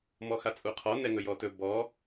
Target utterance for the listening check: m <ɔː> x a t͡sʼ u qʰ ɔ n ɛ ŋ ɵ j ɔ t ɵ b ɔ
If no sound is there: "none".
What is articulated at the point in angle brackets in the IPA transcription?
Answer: ɔ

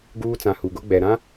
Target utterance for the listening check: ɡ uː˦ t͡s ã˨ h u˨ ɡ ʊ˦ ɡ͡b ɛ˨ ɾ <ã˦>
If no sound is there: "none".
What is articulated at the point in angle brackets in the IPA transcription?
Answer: ã˦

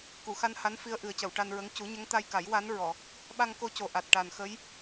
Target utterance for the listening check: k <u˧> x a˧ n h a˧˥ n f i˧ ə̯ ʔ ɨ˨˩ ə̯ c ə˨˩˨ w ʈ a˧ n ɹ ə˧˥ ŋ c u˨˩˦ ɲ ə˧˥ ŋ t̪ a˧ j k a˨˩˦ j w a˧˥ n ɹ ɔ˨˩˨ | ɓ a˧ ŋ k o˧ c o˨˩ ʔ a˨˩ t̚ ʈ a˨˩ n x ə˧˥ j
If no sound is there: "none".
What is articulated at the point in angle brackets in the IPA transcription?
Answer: u˨˩˨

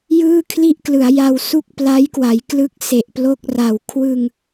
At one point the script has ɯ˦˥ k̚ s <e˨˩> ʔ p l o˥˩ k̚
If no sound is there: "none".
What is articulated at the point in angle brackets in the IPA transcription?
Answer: e˨˩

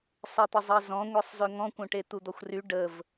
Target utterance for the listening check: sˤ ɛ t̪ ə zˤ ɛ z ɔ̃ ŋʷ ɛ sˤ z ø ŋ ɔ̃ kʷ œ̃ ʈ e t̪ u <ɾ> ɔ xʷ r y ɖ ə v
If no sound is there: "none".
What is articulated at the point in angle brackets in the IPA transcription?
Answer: d̪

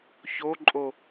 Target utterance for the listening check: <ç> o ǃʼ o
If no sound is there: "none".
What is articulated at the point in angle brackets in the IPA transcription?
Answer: ç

